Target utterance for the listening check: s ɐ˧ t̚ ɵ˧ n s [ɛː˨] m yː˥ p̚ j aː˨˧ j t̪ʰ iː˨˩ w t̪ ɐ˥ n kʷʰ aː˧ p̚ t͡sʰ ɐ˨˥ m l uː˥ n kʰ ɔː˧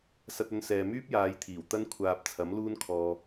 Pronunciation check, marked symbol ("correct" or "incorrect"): correct